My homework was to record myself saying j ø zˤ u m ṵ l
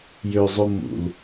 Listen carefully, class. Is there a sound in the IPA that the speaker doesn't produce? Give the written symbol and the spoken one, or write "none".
none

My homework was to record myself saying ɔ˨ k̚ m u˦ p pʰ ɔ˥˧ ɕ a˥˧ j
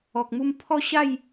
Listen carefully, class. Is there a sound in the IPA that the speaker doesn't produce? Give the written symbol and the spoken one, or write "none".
p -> m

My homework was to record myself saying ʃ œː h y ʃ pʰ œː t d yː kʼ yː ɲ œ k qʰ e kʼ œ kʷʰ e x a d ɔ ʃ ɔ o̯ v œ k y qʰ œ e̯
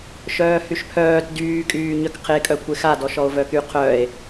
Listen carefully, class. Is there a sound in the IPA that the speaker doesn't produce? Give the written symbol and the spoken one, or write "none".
none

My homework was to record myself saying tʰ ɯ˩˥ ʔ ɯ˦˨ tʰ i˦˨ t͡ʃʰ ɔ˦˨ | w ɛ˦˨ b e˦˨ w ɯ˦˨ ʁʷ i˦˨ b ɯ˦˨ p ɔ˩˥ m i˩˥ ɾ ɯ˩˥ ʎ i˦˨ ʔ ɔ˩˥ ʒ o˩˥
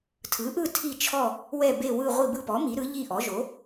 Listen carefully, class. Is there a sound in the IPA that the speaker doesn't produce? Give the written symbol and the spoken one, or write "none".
none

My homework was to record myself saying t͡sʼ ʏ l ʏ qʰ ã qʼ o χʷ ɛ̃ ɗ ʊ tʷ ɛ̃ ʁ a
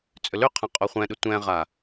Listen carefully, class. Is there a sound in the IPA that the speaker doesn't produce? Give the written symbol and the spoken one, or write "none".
none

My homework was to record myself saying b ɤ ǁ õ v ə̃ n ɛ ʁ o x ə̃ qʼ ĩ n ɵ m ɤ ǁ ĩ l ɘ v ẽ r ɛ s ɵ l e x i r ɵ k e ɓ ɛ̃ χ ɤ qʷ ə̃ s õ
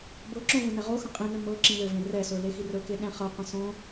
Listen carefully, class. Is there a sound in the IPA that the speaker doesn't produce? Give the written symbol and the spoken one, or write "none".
ɓ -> ɗ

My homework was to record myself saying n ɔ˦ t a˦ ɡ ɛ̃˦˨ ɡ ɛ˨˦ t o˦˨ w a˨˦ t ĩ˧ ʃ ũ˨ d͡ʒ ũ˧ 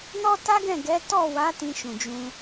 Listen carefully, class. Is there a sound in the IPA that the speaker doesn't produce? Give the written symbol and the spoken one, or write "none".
o˦˨ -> ɔ˦˨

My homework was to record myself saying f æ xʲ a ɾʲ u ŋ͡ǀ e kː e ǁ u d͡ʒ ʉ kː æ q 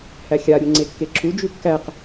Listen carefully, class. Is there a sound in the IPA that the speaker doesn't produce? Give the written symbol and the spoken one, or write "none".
f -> h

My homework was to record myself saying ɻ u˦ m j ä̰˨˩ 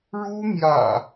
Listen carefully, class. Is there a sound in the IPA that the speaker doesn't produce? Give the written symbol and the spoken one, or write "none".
none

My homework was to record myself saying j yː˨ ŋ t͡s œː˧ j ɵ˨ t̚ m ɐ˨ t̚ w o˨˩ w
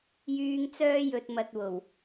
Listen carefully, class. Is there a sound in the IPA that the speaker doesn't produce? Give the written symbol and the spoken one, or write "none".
none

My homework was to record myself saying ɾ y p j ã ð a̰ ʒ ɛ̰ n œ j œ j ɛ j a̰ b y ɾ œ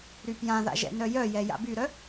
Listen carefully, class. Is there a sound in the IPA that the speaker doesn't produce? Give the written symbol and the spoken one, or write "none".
none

